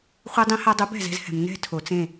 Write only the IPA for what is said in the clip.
χʷ e˧ dˤ ĩ˧ h a˧ dˤ u˨˦ b ɛ̤˦˨ z ɛ̤˧ z h ɛ̤˨ m n ɛ̤˦˨ tʰ o˨ t͡s ẽ˦˨

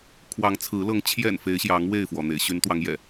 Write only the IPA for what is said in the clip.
kʰ w ɑ˨˦ ŋ t͡sʰ ɹ̩˨˦ l ɤ˨˦ ŋ t͡ɕʰ j ɛ̰˨˩ n f e˨˦ ɪ̯ ɕ j ɑ˨˦ ŋ w e˥˨ ɪ̯ f w ɔ˩ n̪ ḛ˨˩ ɪ̯ ɕ y˨˦ n t̪ w ɑ˨˦ ŋ j ɛ̰˨˩

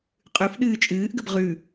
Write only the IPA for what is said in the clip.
qʼ ʉ f ɗ ɨː t͡ʃʼ ɨː ʔ ɡ ə b ʁ ʉ

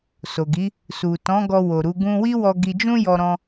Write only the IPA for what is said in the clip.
s o˨ ɡ i˨˦ | s u˨ t ɔ̃˨˦ ɡ ɔ˧ w o˨ ɾ u˨˦ ɡ ũ˧ w i˦ w ɔ˧ ɡ i˧ d͡ʒ ũ˦ j ɔ˧ ɾ ɔ̃˧

